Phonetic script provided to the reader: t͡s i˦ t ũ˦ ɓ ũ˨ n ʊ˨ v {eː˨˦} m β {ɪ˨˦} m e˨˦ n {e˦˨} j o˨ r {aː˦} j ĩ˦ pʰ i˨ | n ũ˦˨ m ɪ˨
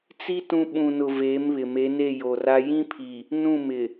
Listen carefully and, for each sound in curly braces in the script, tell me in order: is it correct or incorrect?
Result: correct, incorrect, correct, incorrect

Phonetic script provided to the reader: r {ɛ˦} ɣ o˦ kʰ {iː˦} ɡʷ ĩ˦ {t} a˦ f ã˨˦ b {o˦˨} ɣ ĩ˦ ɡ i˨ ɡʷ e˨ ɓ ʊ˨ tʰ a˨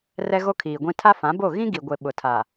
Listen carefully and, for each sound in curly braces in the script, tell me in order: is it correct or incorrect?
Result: correct, incorrect, incorrect, correct

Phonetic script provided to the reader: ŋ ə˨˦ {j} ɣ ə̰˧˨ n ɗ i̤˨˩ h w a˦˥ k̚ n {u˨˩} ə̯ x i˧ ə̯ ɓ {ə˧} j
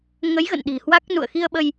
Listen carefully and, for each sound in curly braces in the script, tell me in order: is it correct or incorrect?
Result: correct, incorrect, correct

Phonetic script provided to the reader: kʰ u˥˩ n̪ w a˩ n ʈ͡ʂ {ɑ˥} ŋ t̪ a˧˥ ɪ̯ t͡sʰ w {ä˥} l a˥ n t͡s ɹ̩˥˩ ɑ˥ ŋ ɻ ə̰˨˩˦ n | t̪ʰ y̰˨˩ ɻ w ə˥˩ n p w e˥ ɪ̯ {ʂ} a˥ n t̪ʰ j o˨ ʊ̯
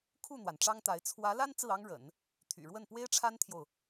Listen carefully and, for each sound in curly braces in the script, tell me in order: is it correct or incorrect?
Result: correct, incorrect, incorrect

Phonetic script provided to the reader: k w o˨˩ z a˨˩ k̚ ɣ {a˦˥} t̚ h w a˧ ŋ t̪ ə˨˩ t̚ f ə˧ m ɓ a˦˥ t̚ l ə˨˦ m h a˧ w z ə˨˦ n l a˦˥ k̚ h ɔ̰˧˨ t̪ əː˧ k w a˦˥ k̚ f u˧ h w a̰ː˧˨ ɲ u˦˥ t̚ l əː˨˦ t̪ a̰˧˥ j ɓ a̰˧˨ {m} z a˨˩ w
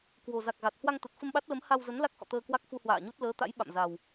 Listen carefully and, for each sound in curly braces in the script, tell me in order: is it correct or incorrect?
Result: incorrect, correct

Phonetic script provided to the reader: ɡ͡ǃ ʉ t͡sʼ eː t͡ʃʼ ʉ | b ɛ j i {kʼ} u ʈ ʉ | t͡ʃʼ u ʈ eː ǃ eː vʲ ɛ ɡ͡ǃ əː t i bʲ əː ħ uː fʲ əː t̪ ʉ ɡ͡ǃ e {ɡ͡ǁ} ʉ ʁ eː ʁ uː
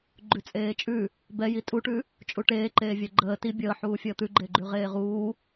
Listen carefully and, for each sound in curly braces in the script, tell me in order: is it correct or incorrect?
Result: incorrect, incorrect

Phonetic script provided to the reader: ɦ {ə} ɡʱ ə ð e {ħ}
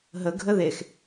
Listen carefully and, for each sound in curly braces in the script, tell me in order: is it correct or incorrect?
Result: correct, incorrect

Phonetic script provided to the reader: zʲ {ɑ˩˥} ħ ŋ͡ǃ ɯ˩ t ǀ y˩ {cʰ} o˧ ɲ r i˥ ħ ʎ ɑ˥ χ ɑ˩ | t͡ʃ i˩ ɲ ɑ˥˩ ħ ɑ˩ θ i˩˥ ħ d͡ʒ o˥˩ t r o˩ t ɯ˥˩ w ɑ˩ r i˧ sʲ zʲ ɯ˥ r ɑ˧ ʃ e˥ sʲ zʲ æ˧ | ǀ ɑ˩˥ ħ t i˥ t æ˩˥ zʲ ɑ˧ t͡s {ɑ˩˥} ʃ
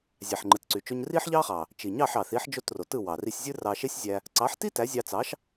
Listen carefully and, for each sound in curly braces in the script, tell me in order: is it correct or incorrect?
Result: incorrect, incorrect, correct

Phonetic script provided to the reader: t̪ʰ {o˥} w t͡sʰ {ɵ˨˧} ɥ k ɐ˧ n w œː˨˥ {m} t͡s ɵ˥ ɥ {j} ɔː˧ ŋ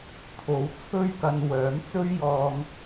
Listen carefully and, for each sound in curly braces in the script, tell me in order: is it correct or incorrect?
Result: incorrect, incorrect, correct, correct

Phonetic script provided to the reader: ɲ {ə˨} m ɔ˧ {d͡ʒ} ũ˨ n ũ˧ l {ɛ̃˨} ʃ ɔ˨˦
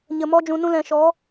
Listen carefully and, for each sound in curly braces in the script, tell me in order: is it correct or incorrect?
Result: correct, correct, correct

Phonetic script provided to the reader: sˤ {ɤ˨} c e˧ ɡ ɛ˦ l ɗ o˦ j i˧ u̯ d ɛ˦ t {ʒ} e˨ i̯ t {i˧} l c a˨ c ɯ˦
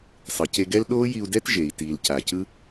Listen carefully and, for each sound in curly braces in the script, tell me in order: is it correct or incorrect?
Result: incorrect, correct, incorrect

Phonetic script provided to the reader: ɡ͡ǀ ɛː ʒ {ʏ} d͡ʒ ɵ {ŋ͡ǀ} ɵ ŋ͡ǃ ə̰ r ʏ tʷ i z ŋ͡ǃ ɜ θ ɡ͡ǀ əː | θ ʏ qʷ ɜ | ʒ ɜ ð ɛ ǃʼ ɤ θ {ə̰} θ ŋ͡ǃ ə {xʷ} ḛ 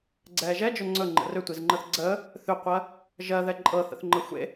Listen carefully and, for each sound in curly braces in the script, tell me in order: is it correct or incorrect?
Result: incorrect, correct, correct, correct

